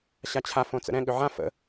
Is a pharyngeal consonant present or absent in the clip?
present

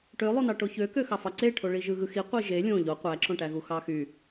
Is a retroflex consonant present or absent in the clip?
present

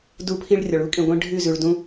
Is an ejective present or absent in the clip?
present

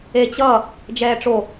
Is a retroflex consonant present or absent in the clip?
present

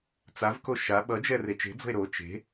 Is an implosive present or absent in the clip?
present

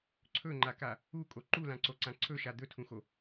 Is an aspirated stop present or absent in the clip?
present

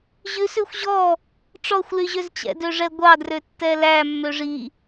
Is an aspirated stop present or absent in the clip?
absent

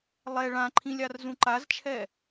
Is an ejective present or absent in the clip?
absent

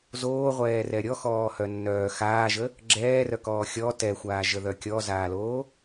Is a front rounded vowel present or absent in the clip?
present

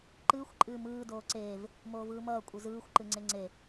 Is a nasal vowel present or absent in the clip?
absent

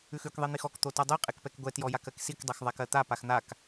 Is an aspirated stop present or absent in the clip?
absent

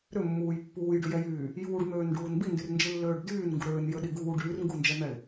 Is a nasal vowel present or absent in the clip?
absent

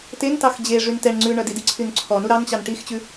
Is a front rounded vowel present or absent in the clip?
present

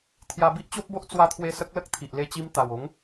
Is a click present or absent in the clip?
absent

